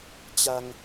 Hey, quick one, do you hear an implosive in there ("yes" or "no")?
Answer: no